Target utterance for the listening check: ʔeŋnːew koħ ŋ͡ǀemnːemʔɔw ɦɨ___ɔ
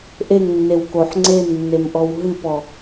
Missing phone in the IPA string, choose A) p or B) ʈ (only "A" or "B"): A